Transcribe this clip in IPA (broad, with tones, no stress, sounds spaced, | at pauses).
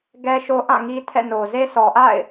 ɡ ɛ˦ ʃ o˦ ʔ ã˦˨ ŋ i˦ tʰ ɛ̰˦˨ n o˨ z e˦ s ɔ˨ ʔ a̰˦˨ ɪ̯